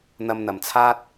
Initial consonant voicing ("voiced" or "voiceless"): voiced